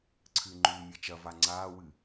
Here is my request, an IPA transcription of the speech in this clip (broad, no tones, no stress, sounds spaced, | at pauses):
ǀʰ ɨ ŋ͡ǃ ʉː mʲ ɐ t͡ʃ ɐ v a ŋ͡ǀ aː w ɨ